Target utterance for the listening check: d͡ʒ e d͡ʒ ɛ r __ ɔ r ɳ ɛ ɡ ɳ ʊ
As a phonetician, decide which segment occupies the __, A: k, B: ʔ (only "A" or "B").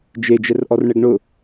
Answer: B